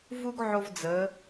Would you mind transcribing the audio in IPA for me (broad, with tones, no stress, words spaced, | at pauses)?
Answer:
vu˥ɡʕo˧v d͡zə˩˧